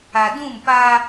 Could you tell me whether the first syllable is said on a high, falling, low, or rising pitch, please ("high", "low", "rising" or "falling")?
low